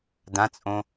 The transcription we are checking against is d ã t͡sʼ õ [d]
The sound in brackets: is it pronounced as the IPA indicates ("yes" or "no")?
no